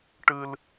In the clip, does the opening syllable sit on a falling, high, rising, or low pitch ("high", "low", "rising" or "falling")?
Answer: high